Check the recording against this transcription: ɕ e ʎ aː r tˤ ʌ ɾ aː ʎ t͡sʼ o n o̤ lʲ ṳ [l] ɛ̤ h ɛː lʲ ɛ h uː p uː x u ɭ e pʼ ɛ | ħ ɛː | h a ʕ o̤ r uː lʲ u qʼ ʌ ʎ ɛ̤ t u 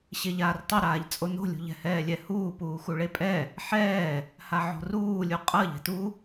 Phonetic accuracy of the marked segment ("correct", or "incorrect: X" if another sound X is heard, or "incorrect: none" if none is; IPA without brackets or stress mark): incorrect: ʎ